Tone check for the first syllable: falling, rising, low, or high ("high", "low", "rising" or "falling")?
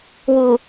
low